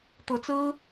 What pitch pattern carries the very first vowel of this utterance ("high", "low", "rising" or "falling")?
rising